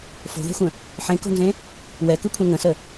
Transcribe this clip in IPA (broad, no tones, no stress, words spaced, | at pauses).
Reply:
fo̤ðɛ̤xʷə̃ | ħẽko̤nzẽ | wɛkɯkʷʰɛ̃ ŋə̃sə